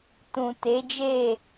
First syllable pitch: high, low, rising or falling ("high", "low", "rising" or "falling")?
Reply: low